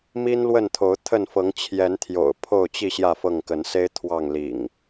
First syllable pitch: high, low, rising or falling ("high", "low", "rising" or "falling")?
high